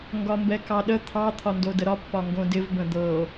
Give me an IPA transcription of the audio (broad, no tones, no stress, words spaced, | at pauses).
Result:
ŋɡɒmbɛkɑɗə t̪ʰɑ t̪ʰɒndodəɾɒ pːɒŋɡõdɪv bə̃d̪ɤ